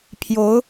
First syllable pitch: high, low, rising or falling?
rising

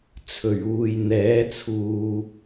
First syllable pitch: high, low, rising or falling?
low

